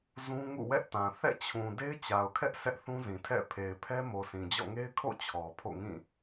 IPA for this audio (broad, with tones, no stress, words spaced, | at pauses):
zũ˦ ŋṵ˦˨wɛ˦ʔtã˨ θɛ̰˦˨t͡ɕʰũ˨ de˦ɪ̯t͡ɕa˨ʊ̯kʰɛ˦ʔ sʰɛ˦ʔθũ˦zĩ˨ tʰɛ̰˦˨ pʰe˨ɪ̯pʰɛ˦mo˨ sĩ˨d͡ʑɔ̰˦˨ ŋe˦ɪ̯kʰo̰˦˨ t͡ɕʰɔ˨pʰo̰˦˨ŋĩ˦˨